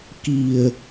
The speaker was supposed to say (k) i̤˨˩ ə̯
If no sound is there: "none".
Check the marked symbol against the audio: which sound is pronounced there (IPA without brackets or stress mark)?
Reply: k